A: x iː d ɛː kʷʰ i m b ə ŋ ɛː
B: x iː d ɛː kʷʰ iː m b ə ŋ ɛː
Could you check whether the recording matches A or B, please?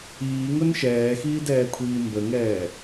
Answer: B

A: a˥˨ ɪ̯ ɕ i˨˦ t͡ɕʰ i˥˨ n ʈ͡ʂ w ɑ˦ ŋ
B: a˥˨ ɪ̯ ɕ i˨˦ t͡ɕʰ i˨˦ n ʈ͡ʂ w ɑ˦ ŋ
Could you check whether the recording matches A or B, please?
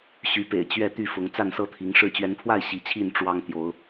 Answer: A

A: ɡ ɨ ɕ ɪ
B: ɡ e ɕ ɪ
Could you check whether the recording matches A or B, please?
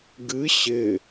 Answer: A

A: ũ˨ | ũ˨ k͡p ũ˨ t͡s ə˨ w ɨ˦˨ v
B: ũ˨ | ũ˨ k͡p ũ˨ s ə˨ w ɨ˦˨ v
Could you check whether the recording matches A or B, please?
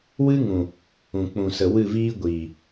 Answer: B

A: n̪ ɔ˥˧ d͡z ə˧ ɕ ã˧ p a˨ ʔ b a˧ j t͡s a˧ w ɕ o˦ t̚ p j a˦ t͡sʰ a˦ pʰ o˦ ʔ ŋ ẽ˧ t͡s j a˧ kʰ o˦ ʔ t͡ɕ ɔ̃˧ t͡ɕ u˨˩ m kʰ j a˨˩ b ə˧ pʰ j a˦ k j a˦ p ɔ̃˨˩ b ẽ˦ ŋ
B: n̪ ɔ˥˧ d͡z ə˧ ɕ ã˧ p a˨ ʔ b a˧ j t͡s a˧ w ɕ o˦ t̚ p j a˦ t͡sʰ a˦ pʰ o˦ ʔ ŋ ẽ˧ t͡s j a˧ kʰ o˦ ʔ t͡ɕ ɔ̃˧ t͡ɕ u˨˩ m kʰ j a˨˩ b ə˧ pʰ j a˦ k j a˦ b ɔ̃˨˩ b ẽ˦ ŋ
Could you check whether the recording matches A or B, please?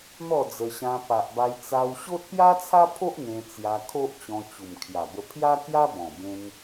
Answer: B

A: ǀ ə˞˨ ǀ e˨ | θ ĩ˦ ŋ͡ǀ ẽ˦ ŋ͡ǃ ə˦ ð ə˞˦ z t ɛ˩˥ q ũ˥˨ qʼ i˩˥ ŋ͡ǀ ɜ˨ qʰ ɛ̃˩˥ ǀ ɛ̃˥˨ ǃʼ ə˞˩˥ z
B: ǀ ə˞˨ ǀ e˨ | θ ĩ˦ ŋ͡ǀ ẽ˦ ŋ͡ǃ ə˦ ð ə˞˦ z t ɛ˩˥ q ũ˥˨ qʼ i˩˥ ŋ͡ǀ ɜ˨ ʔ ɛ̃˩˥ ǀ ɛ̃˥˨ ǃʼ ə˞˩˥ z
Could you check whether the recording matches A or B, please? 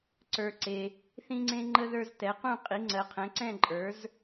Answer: A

